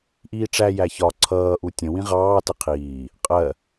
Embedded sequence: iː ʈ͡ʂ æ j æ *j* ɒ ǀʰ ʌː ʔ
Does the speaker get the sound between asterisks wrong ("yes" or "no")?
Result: yes